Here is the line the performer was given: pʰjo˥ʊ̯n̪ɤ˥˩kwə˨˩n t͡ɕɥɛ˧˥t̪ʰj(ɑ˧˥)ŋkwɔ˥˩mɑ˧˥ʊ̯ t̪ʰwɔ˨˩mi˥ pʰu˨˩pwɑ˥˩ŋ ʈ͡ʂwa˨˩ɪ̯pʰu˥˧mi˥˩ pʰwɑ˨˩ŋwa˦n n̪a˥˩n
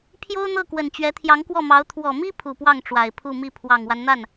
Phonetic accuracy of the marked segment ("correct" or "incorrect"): correct